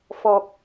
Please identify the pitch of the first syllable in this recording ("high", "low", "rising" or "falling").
low